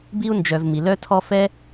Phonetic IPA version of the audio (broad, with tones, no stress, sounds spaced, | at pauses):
b i˥ u̯ n d͡ʒ œ˨ v m i˩ l œ˦ tʰ ɔ˦ f ɛ˥